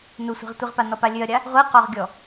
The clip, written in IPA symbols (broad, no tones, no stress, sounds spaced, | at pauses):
n u sʷ e̤ ʁ tʷ i ʁ p a n ɔ p a lʲ ø ɐ̯ ɾʲ a | ʁʷ i q ɔ ʁ ɡʲ ɔ